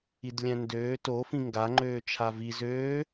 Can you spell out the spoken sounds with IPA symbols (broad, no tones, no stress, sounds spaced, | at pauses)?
i d lʲ æ̃ n d øː t o f ĩ ŋ ɡ a ŋ͡ǃ øː t͡ʃʰ a v i z øː